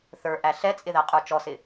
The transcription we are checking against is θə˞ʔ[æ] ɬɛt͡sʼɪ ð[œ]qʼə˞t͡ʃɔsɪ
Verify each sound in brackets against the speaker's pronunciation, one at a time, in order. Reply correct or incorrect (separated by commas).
correct, incorrect